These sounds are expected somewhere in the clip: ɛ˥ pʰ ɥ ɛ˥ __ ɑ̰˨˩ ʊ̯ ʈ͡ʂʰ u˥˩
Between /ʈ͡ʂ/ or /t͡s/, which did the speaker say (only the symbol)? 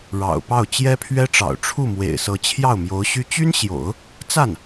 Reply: ʈ͡ʂ